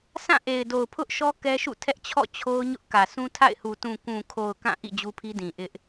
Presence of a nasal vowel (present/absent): present